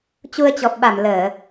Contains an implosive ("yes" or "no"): yes